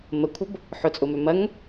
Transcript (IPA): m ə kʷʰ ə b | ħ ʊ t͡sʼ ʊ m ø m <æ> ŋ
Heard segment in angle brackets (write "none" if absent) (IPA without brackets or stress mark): ɐ